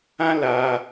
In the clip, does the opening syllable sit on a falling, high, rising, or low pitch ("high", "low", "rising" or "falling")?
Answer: high